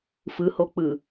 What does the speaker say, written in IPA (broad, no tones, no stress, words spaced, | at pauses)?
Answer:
fɯhok͡pɯ